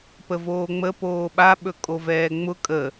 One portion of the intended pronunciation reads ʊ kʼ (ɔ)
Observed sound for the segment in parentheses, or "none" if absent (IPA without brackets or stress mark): ə